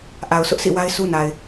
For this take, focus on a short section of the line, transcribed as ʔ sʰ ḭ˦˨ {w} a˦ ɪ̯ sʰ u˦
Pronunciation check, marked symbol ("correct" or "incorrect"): correct